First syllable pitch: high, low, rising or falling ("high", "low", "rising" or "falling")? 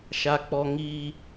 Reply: low